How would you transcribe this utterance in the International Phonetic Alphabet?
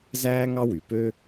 z æː˥ ŋ ɑ˥ w y˩ p ø˥

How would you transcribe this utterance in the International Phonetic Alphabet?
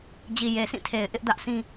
d͡ʑ i˨ j e˨ sʰ ĩ˦˨ tʰ e˨ ɪ̯ ʔ ɪ˦ ʔ d ä˦ ʔ sʰ ĩ˦

